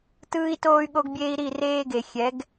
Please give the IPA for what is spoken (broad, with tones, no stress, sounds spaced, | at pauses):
t ɯː˦ i̯ t oː˦ y̯ ɠ o˦ ɡ bʲ eː˦ i̯ ɾ i˦˨ r eː˦ ɡ e˨ xʲ ɛ˨˦ ɡ